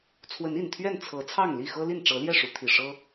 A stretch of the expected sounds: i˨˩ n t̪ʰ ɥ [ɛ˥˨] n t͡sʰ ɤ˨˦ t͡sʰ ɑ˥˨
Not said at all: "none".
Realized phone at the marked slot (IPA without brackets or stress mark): ɛ˥˨